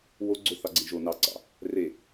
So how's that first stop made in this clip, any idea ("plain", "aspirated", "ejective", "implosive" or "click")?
click